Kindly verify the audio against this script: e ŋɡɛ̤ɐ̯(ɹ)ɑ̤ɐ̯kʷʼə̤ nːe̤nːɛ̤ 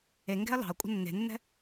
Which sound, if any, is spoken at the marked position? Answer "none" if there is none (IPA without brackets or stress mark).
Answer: l